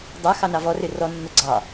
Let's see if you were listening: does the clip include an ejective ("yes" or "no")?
no